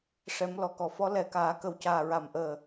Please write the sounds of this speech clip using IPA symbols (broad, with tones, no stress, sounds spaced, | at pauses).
ʂ ɛ˨˩˦ m l ɔ˨˩ k ɔ˨˩ f ɔ˧˥ l ɛ˨˩˦ k aː˨˩˦ k ə˨˩ w c aː˨˩ ɹ a˨˩ m ʔ əː˨˩